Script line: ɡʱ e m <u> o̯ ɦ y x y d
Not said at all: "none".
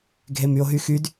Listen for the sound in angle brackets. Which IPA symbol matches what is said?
y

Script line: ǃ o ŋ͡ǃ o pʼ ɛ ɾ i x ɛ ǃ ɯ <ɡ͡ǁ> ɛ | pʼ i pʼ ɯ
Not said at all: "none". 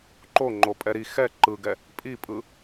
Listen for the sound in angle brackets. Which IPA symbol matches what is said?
ɡ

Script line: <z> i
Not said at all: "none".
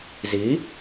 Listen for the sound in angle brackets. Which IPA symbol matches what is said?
z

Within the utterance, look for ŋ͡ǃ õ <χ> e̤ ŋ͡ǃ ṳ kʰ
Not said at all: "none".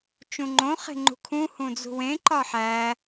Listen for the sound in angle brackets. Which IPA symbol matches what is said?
χ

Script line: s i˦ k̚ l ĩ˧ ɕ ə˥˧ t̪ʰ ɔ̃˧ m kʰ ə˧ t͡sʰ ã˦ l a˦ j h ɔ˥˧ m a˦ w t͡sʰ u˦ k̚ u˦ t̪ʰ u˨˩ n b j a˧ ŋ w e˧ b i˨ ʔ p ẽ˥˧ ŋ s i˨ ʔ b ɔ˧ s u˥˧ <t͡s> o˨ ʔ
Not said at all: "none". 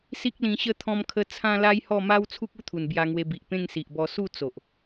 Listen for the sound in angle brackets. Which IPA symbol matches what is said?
t͡s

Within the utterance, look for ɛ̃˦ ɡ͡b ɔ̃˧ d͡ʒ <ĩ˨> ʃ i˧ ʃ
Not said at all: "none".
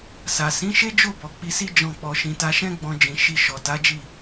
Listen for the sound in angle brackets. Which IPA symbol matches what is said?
ĩ˨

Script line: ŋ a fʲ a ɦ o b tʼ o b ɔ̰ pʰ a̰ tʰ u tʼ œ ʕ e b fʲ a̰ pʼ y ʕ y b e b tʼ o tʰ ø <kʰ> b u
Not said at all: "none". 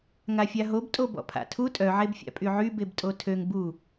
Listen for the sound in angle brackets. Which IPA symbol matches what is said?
ŋ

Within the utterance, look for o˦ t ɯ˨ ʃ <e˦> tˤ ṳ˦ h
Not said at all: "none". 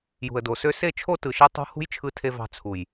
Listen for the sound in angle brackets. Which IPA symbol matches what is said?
e˦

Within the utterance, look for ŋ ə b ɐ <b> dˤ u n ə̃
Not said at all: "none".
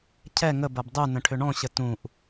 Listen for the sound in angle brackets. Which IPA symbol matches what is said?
b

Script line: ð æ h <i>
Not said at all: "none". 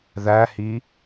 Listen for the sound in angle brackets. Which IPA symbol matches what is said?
i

